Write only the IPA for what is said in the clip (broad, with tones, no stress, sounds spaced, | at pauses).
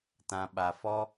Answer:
t ã˨ ɓ a˨ f ɔ˦